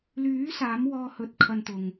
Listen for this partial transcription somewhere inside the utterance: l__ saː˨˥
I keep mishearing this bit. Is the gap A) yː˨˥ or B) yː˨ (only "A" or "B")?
A